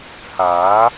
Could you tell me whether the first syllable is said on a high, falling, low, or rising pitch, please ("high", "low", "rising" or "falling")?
rising